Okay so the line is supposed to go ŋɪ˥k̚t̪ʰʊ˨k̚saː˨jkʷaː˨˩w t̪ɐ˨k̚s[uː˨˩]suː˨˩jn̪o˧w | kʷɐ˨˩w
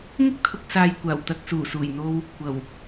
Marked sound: correct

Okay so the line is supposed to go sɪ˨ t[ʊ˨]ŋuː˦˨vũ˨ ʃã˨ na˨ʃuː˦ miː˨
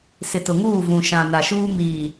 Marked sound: correct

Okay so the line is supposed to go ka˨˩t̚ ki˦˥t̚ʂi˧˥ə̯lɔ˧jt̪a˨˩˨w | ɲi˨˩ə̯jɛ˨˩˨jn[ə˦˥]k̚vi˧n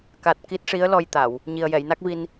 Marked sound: incorrect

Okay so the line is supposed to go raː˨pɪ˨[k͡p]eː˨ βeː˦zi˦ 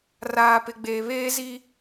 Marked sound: incorrect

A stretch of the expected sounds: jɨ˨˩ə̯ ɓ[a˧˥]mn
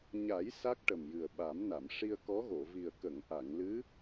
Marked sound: incorrect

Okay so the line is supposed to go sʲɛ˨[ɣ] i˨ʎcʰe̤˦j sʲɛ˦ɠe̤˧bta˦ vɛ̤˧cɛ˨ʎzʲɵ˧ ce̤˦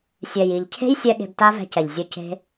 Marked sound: incorrect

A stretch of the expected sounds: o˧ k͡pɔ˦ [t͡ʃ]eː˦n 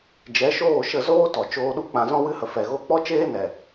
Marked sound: correct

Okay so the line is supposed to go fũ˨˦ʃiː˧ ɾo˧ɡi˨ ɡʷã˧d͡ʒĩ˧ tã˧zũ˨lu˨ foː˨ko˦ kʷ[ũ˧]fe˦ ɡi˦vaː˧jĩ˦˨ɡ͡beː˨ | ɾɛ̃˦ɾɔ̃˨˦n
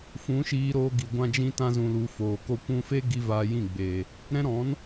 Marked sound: correct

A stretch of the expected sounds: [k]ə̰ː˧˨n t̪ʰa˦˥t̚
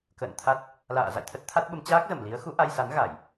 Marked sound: correct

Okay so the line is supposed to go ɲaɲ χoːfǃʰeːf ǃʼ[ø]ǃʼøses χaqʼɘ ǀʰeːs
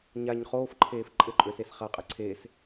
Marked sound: incorrect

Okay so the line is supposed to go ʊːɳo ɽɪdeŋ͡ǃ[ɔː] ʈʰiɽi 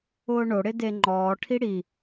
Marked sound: correct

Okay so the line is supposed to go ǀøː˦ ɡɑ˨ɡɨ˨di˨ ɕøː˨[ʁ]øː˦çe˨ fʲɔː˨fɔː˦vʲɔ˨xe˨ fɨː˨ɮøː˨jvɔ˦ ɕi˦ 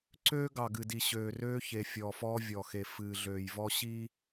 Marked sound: incorrect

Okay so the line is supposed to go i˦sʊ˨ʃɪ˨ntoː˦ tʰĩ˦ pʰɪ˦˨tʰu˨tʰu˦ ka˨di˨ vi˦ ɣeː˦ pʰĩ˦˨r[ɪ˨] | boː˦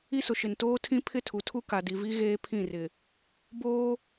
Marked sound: correct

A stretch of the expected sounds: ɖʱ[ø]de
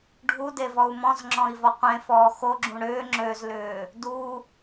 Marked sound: incorrect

